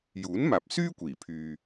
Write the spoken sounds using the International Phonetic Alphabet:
juː˨˥nmaː˨p̚syː˥ kʷiː˨˩pʰyː˨

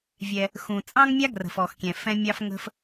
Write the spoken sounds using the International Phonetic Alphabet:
vʲɛ˩ | xũ˩t͡sʼɑ̃˥ŋmʲa˥ ɡrə̤˩fɔ˩xkʲɛ̃˩ fɛ̃˧mʲɑ˧fŋə̤˧f

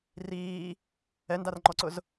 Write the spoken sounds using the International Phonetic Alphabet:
riː | ɛndarŋ͡ǃɔǀʊz

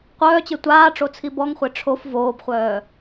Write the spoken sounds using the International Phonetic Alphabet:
qʷœːt͡ɕe tʷaːʈ͡ʂot͡sʰi bɔŋχʷe ʈ͡ʂʰof voːbχʷœː

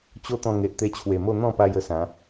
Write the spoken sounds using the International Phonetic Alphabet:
t͡ɕo˦t̪ɔ̃˧ ŋe˨ʔt̪e˧t͡ɕʰwe˨˩mo˥˧ n̪ɔ̃˥˧pa˧j ə˧sã˨˦

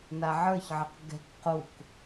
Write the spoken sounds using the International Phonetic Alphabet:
naʕə˞çʕɘq ɡɛ̤k quk

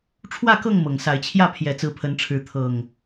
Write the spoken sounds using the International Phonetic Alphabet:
ʈ͡ʂʰwä˥˨kɤ˥˨ŋ mɤ˨˩ŋsa˨˦ɪ̯t͡ɕʰjä˥˨ pʰjɛ˨˦t͡sɹ̩˨˦pʰə˨˦nʈ͡ʂʰɻ̩˨˦ t̪ʰɤ˨˩ŋ

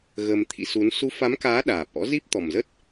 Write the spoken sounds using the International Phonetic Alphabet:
ɣəː˧mt̪ʰḭ˧˥ su˨˦n su˨˦fa˨˦mkaː˨˦ ɗaː˨˩p̚ʔɔ̰˧˥ zi˦˥p̚t̪ɔ˨˩mzə˦˥t̚

